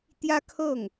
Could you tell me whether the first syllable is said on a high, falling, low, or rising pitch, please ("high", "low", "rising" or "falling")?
high